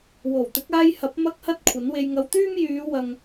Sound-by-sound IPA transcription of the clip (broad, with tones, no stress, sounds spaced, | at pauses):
w o˨˩ w t̪ ɪ˨˥ k̚ aː˧ j h ɐ˨˥ p̚ m ɐ˥ k̚ h ɐ˥ t̚ kʷʰ ɐ˨˥ n w e˧ j ŋ ɐ˨˧ w t̪ yː˥ m j yː˨˧ w ɐ˨ ŋ